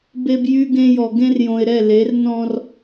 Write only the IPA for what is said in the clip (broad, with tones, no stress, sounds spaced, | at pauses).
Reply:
b e˦ b j y˦ ɡ ẽ˦ j ɔ˨ ɡ ẽ˦ r j õ˨ ɪ̯ ɾ ɛ˦˨ l e˨˦ r n ɔ̃˦ r